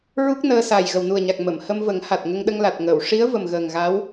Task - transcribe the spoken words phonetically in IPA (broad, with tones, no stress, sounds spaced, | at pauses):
ɹ u˦˥ k̚ n əː˧ s a˨˩ j ɣ ə˨˩ w n u˨˩ ə̯ ɲ a˨˩ k̚ m ə˨˩˨ m h ə˧ m v ə˨˩˦ ŋ h a˨˩ t̚ ŋ ə˧ ŋ ɗ ə˧ ŋ l a˨˩ t̚ ŋ əː˨˩˨ w ʂ i˧˥ ə̯ v ə˨˩ m ɣ əː˨˩ ŋ ɣ a˧˥ w